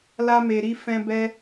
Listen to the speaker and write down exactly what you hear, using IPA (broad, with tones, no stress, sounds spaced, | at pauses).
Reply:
l a˦ m e˧ ɾ i˦ f ɛ̃˦ b ɛ˦